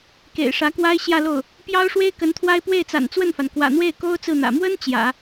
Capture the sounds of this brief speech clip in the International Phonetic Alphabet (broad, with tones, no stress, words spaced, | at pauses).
kḛ˨˩ɪ̯ʂä˧˥kwa˥ɪ̯ ɕjä˥˧lo˥˩ʊ̯ | pjɑ˥ʊ̯ʂwe˥ɪ̯ kə˧˥nt̪ʰwa˥ɪ̯ pwe˥˩ɪ̯t͡sa̰˨˩n t͡swə˥˩nfa˩n kwä̰˨˩n̪we˥˩ɪ̯ ko˥ʊ̯ t͡sɹ̩˥˩n̪ä̰˨˩ mwə˥n t͡ɕjä̰˨˩˦